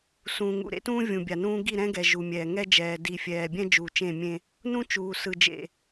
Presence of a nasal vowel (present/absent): present